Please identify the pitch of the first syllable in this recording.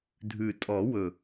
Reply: low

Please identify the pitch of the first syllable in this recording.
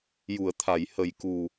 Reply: low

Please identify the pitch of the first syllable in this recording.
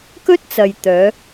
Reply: high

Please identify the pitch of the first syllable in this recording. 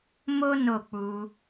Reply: high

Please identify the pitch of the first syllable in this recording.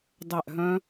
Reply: falling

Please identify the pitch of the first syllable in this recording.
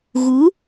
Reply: rising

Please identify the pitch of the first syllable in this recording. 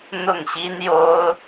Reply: falling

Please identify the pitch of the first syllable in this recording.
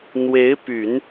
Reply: rising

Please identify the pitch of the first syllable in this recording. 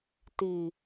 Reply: low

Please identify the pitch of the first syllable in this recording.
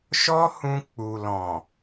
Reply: high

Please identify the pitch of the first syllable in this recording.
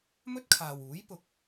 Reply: high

